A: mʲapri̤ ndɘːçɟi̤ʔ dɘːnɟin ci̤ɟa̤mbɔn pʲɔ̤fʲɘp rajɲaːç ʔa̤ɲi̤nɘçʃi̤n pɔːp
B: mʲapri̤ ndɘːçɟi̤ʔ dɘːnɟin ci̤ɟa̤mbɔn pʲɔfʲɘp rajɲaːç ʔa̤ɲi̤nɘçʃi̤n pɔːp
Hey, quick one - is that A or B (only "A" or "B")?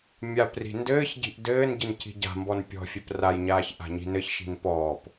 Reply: A